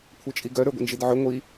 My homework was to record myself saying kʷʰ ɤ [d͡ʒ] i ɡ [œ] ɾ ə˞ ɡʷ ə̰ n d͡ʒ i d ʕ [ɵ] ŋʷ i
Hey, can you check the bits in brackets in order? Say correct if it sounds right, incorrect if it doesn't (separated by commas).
incorrect, correct, correct